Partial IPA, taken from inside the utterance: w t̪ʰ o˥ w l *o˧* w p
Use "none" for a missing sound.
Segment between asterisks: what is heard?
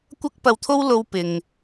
o˥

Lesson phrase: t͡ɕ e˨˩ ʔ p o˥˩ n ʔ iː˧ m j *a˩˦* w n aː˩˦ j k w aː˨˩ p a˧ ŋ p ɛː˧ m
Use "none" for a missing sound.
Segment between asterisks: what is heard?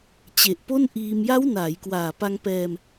a˦˥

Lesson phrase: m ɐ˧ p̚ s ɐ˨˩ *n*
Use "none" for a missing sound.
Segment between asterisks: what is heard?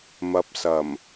m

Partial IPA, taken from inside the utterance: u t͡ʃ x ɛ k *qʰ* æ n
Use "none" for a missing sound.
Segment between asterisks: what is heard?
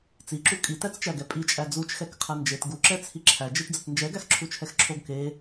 qʰ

